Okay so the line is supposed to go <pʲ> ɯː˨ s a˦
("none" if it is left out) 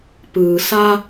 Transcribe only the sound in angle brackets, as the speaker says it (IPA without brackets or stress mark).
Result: p